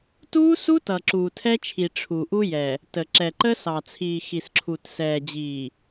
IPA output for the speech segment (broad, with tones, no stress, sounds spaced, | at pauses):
t uː˦ s u˦ t ʌ˨ ǁ uː˨ tʰ ɛ˦ t͡ʃʰ i˨ ʈ͡ʂʰ u˨ ʔ u˦ j ɛ˨ | t ə˨ ǁ ɛ˨ ǃ ə˦ s ɑ˨ t͡sʰ iː˨ x i˨ s ǁʰ u˨ t s ɛː˨ d͡ʑ iː˨